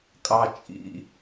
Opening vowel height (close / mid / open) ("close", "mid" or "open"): open